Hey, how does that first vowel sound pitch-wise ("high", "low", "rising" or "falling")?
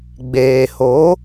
low